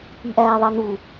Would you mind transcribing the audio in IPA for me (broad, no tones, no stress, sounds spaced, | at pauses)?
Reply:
i ʔ æː ðˤ ɑ n u